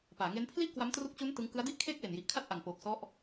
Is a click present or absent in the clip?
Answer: absent